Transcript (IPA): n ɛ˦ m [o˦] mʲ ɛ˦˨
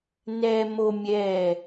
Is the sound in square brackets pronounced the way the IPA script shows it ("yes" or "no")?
yes